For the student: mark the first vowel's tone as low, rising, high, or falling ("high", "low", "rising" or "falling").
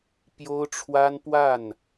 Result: high